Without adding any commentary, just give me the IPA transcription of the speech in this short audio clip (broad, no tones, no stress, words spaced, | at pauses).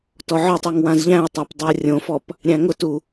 tɔʕɔtˤiŋ wãzʎæ̃ɐ̯tˤæp dˤiɐ̯rʲõfɔp | ɾʲæ̃ŋʊtu